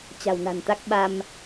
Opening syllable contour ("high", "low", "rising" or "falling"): low